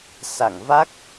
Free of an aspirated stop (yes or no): yes